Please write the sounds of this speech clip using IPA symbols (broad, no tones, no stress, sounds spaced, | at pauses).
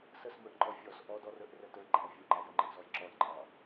s ə s m ə˞ ʔ ŋ͡ǃ ɔ fʲ ɔ s ʔ ɔ d ɔ r ə˞ ʔ r ə t ə˞ ɡ͡ǃ æ vʲ u ǃ æ j ə ŋ͡ǃ ɪ ʔ z ɔ j ǁ ɔ j ǃʼ ɑ